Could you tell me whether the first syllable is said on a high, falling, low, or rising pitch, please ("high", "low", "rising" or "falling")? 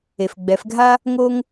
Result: low